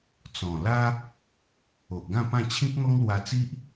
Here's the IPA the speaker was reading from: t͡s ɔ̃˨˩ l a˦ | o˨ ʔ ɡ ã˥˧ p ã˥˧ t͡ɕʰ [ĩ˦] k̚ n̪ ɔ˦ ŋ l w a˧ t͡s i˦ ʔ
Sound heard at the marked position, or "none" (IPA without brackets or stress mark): ĩ˦